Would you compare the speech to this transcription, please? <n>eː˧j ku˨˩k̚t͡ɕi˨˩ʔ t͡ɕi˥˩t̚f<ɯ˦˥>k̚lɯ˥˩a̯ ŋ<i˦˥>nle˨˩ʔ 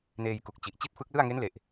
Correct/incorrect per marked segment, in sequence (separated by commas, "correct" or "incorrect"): correct, correct, incorrect